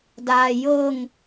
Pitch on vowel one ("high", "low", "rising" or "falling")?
low